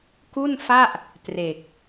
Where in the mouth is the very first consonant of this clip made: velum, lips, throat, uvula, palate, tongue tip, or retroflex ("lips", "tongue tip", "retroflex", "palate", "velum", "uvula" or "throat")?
velum